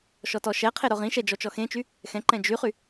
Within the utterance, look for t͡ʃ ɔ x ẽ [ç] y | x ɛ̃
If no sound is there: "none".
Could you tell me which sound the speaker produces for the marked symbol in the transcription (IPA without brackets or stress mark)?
t͡ʃ